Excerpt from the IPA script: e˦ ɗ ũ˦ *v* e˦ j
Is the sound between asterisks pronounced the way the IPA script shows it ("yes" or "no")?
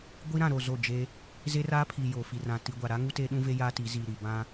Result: yes